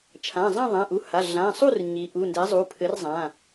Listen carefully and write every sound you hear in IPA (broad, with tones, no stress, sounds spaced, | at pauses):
t͡ʃʰ ã˩˧˩ zˤ ã˥˨ ðˤ ã˩˧˩ ʔ u˩˧˩ h a˩˧˩ ɮ ã˩˧˩ sˤ u˥˨ r ɲ i˩˧ ʔ u˩˧˩ n d ɛ˩˥ zˤ u˩˧˩ pʰ ɘ˩˥ r zˤ ã˩˧˩